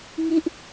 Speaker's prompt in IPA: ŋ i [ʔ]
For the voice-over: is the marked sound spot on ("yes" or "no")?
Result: yes